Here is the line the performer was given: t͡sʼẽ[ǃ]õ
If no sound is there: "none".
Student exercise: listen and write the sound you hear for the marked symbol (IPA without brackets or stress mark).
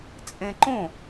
ǃ